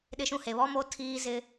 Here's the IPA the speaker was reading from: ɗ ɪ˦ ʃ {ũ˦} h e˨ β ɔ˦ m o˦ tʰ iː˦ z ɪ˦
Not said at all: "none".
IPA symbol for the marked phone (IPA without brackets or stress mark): ũ˦